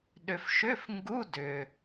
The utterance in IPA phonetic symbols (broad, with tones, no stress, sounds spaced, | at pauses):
ɗ ʏ˩ f ʃ ʏ˧˥˧ f ŋ ɡ u˧˥˧ d ʏ˩